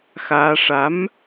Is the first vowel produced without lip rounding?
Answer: yes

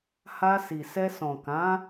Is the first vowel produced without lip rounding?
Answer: yes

